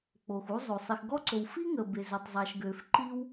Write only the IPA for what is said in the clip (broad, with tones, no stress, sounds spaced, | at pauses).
k͡p o˩ x u˥ zˤ o˩ sˤ i˩ x ɡ ɔ˥ ǀ o˩ w f i˥ ŋ ə˩ b e˩ z ø˩ tˤ zˤ a˩ ʃ ɡ ø˩ f ǃ i˥ w